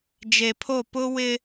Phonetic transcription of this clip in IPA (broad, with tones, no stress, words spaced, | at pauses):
d͡ʒe˨pʰo˦˨ pʊ˦ wɪ˦